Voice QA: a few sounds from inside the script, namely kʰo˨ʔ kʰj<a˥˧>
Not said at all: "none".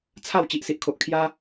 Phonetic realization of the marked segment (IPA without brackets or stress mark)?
a˦